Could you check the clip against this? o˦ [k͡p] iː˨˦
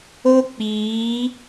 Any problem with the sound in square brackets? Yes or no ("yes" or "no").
no